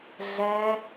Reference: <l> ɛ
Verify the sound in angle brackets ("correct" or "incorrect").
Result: incorrect